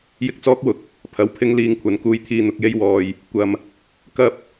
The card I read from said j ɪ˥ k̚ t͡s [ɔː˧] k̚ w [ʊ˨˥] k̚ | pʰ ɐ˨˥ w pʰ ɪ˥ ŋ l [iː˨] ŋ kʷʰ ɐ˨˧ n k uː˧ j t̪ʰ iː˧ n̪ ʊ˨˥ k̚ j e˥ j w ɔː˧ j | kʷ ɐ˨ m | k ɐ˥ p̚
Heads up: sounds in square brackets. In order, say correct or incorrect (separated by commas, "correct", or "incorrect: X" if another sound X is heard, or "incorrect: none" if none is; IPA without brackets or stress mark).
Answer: incorrect: ɔː˥, correct, incorrect: iː˧